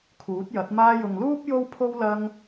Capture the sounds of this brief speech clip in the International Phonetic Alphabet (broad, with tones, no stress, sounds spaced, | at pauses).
kʰ uː˨˥ t̚ j ɐ˨˥ t̚ m aː˧ j ʊ˨ ŋ l uː˥ p̚ j o˥ w pʰ o˥ w l ɐ˧ ŋ